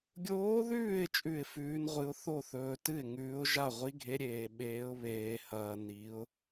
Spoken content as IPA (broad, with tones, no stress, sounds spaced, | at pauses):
ɡʲ oː˧˥ ð ʉː˥˩ ɪ̯ t͡ʃʼ ʉ˥˩ ɪ̯ f ʉː˧˥ n ʁʷ ɨ˧˥ ʊ̯ θ o˥˩ θ ɵː˧ t ɨ˥˩ ɪ̯ ŋ ʉː˧˥ ʊ̯ ʒ a˥˩ ʁʷ i˧˥ ɡʱ e˧˥ ɾʲ eː˧ ɓ eː˧˥ ʊ̯ β eː˧ h ɐː˧ n i˧˥ ʊ̯